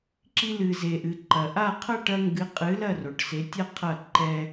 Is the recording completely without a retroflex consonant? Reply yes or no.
no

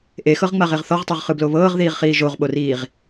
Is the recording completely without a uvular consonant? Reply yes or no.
no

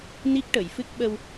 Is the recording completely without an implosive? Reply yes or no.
no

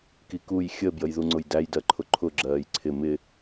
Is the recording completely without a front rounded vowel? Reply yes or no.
yes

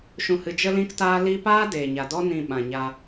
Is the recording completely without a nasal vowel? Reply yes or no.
no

